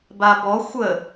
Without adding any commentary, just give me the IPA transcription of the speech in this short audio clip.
b a b ɔ xʷ ə

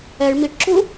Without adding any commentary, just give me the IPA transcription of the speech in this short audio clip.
ɛ ɭ m i ʈ ǁ u

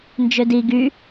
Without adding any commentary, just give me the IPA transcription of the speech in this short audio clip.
n d͡ʒ ø d i ɡ y

